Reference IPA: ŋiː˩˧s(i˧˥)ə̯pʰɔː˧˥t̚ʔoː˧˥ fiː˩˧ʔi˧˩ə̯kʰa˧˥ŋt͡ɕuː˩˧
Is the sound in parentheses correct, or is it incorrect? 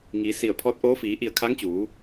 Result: incorrect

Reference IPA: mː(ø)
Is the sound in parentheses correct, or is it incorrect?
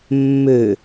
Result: correct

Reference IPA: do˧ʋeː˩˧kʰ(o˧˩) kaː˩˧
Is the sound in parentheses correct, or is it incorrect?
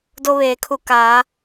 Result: incorrect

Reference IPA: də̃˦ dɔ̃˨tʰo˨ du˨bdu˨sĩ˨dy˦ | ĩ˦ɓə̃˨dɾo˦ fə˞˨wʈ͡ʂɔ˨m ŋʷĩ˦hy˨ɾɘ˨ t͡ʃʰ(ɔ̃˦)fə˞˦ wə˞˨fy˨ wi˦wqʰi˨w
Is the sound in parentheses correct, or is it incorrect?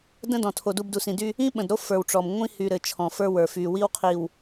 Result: incorrect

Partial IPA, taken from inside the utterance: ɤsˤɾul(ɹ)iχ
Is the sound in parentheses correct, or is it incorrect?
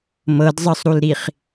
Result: incorrect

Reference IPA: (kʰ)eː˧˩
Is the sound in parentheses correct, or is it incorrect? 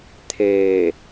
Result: incorrect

